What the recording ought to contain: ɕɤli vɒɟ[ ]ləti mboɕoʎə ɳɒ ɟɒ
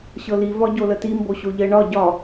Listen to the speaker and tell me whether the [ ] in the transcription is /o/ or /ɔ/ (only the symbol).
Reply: o